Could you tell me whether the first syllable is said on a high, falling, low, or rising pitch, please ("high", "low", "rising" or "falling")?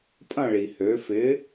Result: falling